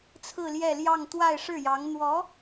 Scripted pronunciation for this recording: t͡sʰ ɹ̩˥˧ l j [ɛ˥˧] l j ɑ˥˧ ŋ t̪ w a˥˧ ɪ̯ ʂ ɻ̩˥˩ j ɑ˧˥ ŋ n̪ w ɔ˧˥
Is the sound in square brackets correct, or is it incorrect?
correct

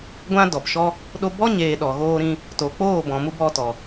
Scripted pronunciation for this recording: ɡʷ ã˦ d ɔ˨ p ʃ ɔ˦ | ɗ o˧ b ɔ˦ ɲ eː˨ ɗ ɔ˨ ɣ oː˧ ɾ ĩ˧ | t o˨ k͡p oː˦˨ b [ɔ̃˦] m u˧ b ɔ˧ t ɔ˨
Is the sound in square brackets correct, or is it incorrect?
incorrect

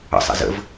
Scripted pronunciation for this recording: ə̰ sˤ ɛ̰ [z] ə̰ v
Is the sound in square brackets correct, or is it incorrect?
correct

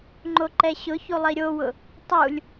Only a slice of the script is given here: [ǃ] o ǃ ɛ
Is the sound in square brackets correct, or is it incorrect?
incorrect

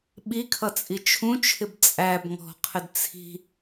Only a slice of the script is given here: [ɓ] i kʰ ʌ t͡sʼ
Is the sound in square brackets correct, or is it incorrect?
correct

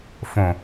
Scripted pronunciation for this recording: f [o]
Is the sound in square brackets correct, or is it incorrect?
incorrect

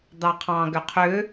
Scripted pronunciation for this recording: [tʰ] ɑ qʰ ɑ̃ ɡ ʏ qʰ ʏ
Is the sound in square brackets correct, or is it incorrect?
incorrect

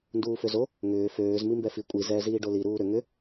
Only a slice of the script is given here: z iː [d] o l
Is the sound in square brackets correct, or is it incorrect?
incorrect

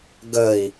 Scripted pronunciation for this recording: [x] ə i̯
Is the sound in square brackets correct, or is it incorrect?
incorrect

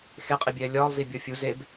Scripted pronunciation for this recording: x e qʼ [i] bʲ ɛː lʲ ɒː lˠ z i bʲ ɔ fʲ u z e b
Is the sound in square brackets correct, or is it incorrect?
correct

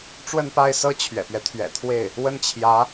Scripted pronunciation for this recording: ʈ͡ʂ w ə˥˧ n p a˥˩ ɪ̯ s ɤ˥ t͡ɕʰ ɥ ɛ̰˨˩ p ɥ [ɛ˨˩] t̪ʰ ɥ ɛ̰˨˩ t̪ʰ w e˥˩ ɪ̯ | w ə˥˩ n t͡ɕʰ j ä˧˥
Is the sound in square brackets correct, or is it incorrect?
incorrect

